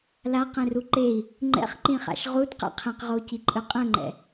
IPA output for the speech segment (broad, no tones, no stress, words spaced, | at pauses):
laqẽru ǃei̯ | ŋ͡ǃɛ̰χǃĩχa̰ʃ ʁudqɛ̰ qʰẽqʁou̯ciǃʼɯ qʼɛ̃ŋ͡ǃɛ̰